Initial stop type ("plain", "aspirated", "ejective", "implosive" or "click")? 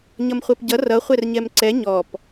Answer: plain